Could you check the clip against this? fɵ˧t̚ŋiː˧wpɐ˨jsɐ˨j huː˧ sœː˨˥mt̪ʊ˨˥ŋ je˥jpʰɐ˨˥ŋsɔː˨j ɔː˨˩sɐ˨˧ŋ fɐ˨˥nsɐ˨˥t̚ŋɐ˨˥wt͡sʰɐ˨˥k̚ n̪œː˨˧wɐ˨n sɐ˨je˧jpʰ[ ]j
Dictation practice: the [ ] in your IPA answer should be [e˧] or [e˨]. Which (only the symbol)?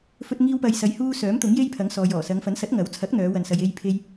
e˧